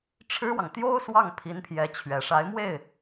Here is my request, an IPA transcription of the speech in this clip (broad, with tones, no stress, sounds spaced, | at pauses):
ʈ͡ʂʰ ɻ̩˥ w ɑ˨ ŋ t̪ j o˥ ʊ̯ s w ɑ˥˩ ŋ pʰ i˧˥ n pʰ j ɛ˧˥ t͡ɕʰ ɥ ɛ˨˩ ʂ a˧˥ ɪ̯ m w e˥˩ ɪ̯